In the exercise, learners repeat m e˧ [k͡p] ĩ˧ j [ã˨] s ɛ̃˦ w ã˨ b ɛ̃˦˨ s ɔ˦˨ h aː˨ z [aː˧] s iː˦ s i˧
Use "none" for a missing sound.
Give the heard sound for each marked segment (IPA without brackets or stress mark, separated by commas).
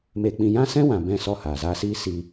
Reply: k͡p, ã˦, aː˧